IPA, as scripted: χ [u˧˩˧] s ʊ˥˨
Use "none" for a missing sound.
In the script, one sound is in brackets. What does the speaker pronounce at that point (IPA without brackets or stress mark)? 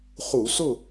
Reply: u˧˩˧